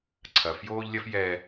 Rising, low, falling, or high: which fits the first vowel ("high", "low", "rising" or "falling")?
low